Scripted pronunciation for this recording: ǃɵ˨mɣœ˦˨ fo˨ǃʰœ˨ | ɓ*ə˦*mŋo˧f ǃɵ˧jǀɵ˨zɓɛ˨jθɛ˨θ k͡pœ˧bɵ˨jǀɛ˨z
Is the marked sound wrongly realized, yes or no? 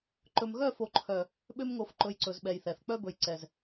yes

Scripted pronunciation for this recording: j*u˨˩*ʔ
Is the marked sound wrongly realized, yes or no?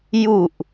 no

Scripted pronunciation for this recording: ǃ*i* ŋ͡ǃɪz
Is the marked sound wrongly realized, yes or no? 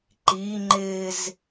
no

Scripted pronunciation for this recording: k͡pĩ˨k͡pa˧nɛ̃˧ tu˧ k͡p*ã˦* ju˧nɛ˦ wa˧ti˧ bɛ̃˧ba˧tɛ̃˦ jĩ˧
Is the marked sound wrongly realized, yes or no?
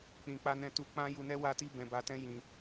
no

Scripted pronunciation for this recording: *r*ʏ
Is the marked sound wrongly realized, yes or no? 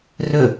no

